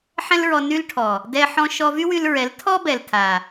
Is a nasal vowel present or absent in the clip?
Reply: present